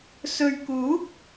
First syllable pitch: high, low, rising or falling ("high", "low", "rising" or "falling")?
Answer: low